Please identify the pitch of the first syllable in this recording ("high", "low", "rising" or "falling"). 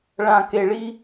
low